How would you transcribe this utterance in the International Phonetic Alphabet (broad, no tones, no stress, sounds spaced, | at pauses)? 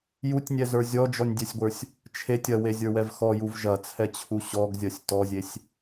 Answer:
j u tʲ nʲ ɛ z ə˞ zʲ ɔ d͡ʒ ɔ nʲ dʲ ɛ sʲ ɡʷ ə˞ sʲ | t͡ʃʰ e tʲ ɐ w e zʲ ə˞ w ɛ v x ɔ j u v ʒ ɐ t͡sʰ ɛ t͡ɕʰ u ɕ ɔ ɡ zʲ ɐ sʲ t ɔ zʲ e sʲ